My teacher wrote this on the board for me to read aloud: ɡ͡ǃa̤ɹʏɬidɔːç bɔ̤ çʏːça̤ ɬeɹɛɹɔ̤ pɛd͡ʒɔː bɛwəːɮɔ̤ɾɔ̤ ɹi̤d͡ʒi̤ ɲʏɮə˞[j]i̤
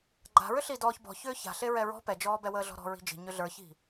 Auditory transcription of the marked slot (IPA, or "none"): ç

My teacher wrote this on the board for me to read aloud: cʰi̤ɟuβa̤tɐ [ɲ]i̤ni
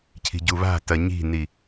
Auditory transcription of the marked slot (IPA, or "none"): ɲ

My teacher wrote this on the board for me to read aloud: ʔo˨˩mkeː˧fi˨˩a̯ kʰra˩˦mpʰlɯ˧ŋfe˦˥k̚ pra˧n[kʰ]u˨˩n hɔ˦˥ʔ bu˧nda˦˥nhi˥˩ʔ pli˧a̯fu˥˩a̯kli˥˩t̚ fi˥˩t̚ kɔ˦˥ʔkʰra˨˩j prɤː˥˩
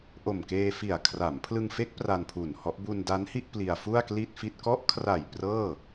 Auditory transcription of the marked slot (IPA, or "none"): pʰ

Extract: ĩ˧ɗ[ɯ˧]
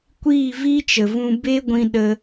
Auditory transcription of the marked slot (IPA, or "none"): ə˧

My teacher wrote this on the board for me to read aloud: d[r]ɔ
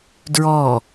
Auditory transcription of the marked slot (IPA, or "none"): ɹ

